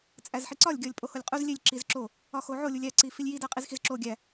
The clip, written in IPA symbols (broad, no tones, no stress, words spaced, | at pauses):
t͡sʼæzħiǀɒlʲ ɡʲɒlʲpʼoholʲqʼuz lʲelʲ ǁizǁo | ɒxoʕo lʲulʲæ ǀifilʲji dæqʼizxizǁo ɡʲæ